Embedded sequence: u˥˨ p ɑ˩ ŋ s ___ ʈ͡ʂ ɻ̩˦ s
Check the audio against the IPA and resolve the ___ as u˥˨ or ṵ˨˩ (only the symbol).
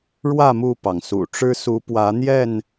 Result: ṵ˨˩